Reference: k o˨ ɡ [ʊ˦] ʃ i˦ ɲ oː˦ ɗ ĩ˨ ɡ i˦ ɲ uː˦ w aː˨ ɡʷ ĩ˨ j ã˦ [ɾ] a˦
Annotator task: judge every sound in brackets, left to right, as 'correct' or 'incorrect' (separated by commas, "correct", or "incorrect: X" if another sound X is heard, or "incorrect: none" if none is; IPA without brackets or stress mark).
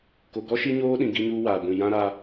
incorrect: ɔ˦, correct